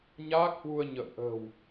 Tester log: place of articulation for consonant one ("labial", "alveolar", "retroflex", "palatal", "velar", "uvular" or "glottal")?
palatal